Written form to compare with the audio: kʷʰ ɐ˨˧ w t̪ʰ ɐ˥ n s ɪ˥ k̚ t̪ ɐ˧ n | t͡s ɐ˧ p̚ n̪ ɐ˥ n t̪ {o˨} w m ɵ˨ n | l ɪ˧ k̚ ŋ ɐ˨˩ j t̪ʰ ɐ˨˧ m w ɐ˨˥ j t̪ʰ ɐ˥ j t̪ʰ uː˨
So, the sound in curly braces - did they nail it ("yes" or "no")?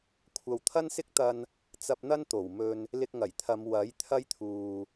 no